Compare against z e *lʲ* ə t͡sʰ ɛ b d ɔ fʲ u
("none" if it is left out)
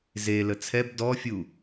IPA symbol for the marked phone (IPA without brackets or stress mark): l